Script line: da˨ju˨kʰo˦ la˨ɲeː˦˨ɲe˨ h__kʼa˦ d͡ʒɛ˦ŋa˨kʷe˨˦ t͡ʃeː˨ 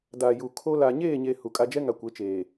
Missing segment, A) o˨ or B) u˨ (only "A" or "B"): B